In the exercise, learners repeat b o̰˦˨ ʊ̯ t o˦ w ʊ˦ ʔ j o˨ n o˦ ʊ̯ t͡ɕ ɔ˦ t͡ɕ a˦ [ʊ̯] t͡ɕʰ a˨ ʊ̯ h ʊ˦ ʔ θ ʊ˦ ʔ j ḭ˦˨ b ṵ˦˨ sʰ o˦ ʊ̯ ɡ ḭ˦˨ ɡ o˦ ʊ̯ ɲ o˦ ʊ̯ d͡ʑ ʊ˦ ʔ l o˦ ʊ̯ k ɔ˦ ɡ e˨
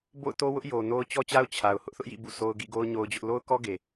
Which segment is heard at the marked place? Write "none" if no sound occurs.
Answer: ʊ̯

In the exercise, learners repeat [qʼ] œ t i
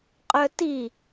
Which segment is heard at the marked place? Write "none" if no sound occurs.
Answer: qʼ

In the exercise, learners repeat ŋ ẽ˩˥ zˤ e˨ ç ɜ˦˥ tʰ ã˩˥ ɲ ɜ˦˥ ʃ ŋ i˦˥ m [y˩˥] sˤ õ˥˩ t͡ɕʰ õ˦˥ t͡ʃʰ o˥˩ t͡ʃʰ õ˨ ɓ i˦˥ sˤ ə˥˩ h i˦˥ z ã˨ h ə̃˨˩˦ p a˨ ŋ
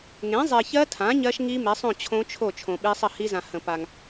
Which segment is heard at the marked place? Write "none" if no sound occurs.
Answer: e˩˥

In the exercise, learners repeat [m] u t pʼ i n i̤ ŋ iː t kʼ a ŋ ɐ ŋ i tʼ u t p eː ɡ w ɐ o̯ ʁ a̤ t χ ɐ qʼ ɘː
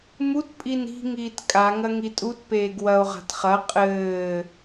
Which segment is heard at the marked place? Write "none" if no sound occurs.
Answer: m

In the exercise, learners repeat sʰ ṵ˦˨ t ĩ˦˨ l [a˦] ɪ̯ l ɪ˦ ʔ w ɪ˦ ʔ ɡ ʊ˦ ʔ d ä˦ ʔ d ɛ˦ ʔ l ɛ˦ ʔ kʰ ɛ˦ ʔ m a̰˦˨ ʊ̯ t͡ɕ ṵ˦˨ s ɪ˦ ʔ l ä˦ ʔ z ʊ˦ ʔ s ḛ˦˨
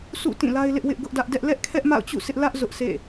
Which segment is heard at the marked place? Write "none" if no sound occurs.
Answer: a˦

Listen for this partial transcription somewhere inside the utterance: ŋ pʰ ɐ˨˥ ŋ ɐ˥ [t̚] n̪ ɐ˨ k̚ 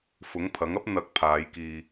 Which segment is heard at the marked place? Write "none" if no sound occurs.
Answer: p̚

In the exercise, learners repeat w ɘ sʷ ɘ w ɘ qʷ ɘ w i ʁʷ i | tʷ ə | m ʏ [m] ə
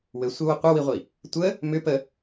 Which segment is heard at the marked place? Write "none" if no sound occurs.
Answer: p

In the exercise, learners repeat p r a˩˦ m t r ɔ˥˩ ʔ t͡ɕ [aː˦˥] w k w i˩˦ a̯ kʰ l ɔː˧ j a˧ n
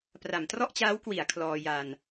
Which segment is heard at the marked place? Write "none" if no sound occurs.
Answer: aː˦˥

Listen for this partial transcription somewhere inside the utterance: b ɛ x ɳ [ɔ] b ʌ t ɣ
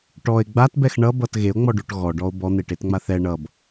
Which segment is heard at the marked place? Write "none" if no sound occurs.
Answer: ʌ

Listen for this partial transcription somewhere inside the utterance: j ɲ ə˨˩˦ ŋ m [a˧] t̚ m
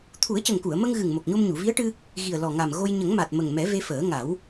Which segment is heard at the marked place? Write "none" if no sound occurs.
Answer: a˨˩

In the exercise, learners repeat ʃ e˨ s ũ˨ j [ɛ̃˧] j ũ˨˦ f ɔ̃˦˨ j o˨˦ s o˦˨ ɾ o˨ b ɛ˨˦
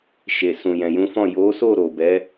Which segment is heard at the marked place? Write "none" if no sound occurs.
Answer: ɛ̃˨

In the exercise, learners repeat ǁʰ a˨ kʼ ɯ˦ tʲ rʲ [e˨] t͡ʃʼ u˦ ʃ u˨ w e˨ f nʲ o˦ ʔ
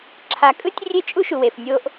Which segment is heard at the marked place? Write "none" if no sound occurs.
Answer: e˦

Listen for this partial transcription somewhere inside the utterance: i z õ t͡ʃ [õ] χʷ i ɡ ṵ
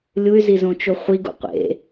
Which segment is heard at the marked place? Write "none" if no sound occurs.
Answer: o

